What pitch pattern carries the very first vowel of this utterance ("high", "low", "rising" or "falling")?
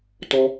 high